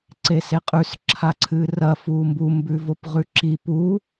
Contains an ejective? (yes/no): yes